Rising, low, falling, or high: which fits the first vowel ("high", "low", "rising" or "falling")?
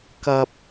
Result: low